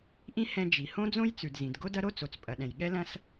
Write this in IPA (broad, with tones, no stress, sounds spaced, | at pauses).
ʔ ĩ˥ h ɛ̃˥ d͡ʒ i˩ h õ˥ d͡z õ˥ j t͡s ʉ˩ d z ĩ˩ d ɡ o˥ d ɐ˥ ɾ o˥ t͡s o˩ t͡s pʼ ɐ˩ ɗ ɛ̃˩ j ɠ ɛ˥ l ɐ̃˥ s